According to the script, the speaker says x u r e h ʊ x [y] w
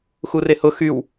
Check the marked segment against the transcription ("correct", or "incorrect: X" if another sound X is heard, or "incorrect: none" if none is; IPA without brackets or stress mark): correct